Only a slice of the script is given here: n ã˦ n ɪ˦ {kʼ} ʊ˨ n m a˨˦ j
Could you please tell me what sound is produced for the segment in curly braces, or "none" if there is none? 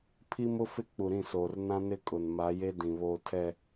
kʼ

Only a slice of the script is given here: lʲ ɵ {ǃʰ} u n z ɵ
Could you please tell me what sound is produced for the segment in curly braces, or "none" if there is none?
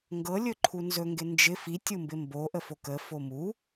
ǃʰ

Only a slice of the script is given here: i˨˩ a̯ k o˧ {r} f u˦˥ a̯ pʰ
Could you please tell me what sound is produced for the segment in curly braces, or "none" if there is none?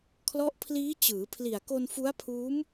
n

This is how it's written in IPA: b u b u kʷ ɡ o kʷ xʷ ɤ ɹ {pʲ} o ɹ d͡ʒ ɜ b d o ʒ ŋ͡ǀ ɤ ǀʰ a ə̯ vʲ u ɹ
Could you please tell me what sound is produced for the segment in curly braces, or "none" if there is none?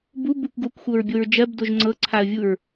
bʲ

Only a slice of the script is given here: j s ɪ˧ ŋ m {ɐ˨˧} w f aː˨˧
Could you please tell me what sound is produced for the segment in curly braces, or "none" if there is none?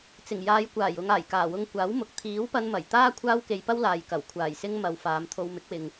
ɐ˨˧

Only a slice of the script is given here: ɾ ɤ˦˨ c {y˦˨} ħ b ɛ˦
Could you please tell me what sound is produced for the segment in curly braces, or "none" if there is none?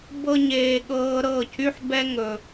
y˦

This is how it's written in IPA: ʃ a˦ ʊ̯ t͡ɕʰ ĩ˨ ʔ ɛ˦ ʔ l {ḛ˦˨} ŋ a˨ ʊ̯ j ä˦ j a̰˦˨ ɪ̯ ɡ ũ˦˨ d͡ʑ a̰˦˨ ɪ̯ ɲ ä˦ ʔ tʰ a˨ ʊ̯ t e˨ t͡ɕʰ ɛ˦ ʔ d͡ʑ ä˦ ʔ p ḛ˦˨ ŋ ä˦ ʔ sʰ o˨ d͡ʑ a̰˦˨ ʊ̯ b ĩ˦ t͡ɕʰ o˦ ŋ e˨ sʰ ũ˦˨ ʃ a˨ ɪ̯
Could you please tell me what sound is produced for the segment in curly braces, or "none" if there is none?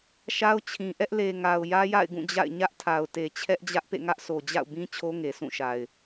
e˨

